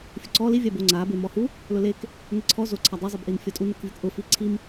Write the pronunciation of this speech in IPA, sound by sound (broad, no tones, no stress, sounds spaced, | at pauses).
fʲ ʊ ǀ ɔ l i vʲ a b o ŋ͡ǀ a b e m ɔ h u | l ʊ l e k | ŋ e ǀʰ ɔ z o ǀʰ a dˤ o zˤ i b ʔ i n fʲ ɔ tʼ u n o k vʲ ʊ k ʔ ʊ f i ǀʰ i m